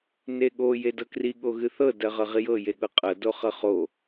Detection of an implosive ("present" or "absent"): present